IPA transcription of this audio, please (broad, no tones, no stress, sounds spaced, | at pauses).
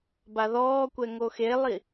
b a ð ɔː kʷ ɛ ŋ o x e lˠ i